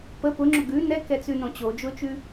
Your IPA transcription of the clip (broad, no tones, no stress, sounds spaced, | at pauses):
p ə p ʊ ŋ͡ǁ ʊ ɡ ʉ n ɛ k ɛ t͡s ʉ n õ t͡ɕ o d͡ʒ ʊː t͡ʃ ʉ